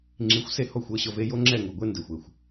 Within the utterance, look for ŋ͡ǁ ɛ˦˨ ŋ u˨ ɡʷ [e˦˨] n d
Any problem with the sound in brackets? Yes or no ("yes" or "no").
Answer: yes